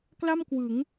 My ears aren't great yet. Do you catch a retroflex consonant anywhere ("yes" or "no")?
no